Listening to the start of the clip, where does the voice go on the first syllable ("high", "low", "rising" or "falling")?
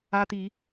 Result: high